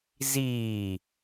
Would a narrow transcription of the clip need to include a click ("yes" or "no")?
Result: no